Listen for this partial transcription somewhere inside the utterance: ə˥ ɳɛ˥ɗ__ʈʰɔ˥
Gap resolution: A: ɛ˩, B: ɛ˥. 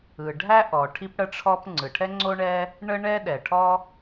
A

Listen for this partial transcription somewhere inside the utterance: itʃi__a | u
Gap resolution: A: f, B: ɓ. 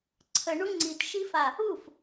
A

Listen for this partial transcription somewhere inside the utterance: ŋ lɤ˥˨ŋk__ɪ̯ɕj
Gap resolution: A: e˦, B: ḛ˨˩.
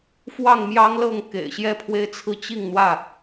B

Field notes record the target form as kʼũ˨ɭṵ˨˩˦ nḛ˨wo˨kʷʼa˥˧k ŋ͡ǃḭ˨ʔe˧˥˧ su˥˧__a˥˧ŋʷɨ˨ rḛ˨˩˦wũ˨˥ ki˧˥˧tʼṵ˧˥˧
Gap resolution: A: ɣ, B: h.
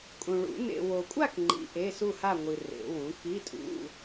B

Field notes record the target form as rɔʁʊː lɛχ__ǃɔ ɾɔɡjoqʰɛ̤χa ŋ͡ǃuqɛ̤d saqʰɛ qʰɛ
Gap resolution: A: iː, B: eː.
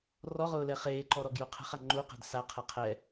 B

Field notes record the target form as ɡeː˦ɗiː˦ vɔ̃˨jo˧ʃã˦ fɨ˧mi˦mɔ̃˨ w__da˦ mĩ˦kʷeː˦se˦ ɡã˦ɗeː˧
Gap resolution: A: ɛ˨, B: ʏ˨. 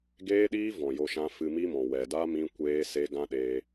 A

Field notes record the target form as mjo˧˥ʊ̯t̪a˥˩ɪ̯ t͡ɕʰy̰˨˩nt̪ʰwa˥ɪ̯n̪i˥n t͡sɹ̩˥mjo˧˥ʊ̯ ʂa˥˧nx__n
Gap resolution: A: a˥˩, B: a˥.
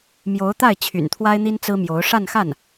A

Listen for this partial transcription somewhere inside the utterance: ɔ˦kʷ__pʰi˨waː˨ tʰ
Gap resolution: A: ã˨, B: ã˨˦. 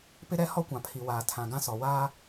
A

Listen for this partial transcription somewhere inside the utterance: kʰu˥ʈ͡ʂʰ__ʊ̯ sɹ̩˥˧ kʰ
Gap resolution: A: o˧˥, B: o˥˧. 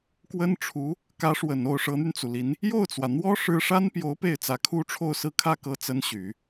B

